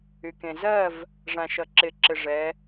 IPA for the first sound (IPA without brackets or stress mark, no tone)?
y